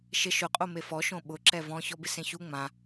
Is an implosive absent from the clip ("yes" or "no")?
no